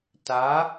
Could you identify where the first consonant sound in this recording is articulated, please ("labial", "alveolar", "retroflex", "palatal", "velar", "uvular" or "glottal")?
alveolar